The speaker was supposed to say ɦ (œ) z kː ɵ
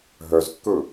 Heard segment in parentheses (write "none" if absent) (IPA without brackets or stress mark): œ